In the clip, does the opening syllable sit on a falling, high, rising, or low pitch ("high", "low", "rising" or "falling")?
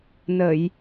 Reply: low